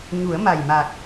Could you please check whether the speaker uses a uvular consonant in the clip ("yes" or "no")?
no